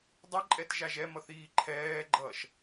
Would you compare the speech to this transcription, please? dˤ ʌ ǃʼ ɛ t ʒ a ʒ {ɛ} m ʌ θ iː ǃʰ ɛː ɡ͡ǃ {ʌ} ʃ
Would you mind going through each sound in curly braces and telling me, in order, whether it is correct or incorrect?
correct, incorrect: ʌː

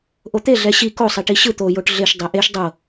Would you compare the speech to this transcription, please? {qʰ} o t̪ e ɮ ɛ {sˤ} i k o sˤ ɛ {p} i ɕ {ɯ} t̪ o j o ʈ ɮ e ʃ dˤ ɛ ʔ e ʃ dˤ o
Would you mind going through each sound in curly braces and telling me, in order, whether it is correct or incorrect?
incorrect: ʔ, incorrect: ɕ, incorrect: ʈ, correct

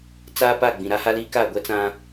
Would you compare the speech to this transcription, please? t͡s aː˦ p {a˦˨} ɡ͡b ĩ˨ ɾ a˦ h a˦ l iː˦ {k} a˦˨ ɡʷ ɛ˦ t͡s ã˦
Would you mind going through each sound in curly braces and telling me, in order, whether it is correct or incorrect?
correct, correct

